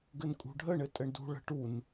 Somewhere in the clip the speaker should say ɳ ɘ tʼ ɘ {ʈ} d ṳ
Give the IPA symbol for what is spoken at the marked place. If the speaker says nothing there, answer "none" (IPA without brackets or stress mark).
ɳ